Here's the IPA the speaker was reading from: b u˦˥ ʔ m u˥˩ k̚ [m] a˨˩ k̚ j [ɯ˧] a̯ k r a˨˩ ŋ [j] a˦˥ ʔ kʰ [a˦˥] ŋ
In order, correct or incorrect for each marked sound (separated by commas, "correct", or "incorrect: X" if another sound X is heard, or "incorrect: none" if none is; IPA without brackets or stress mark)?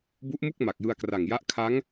correct, correct, correct, correct